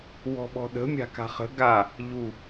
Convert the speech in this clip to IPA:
wɔ̤ɓɔ̤ɗə̤ mʲa̤ka̤χə̤ ɡa | ʎu

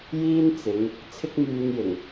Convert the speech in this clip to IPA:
jiː˥nt͡sɪ˨˧ŋ | t͡sʰɪ˥k̚myː˧njɪ˨˩ŋ

